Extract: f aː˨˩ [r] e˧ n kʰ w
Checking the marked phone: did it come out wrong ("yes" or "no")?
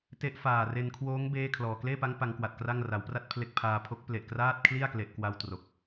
no